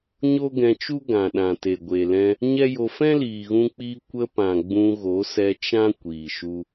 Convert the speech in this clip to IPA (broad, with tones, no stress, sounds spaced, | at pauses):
ɲ o˦ ɡ ɛ̃˧ t͡ʃ u˦ ɡ ã˨ ɗ ã˨ t e˨ ɡʷ e˨ l ɛ̃˧ | ɲ ɛ˦ j o˧ f ɛ̃˦ l iː˨ ɣ ũ˧ k͡p iː˧ kʷ ə˧ p ã˨ ɡ͡b ũ˧ ɣ o˨˦ s ɛ˧ t͡ʃ ã˦ kʷ iː˨ ʃ u˧